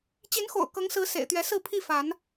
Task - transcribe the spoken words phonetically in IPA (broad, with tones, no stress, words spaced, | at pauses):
t͡ɕi˨˦nxo̰˨˩ʊ̯ kɤ˨˦ŋsɹ̩˨˦ sḛ˨˩ɪ̯t̪ɥɛ˨˦sɹ̩˥˨ pʰi˥˨fa˨˦n